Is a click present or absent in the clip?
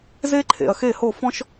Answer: present